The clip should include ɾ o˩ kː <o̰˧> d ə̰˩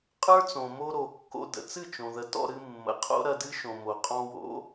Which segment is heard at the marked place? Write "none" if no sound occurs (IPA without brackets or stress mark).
o̰˧